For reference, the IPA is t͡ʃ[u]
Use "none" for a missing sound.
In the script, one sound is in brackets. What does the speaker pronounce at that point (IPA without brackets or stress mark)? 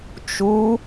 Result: u